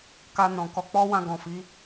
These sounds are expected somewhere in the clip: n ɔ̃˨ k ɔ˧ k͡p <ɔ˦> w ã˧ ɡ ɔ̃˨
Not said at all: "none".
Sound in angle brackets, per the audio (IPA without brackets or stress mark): ɔ˦